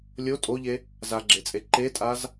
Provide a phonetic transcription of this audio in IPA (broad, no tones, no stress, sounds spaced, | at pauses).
lʲ o tʼ o ʎ e | z a ɡ͡ǁ e t͡sʼ e ǃ e tʼ a z